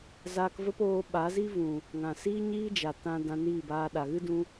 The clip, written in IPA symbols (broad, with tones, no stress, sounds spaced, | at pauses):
z aː˧ k v ə˦ p oː˧ ɓ a˨˦ z i˦ v ũ˨ | ŋ ã˨ s iː˦ ɲ iː˦ d͡ʒ a˨ t ã˧ d ã˧ n iː˦˨ b aː˧ ɗ a˨ ɣ ɨ˦ d ũ˧